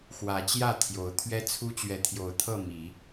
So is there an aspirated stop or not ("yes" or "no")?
yes